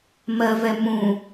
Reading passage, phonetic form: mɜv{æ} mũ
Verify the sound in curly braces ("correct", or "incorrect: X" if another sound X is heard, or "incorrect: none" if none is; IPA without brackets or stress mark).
incorrect: ɛ